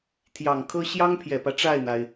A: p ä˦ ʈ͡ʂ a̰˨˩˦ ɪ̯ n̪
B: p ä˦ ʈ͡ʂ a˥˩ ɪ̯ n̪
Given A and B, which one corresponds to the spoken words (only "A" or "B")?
B